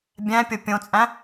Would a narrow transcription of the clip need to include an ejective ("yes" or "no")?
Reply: yes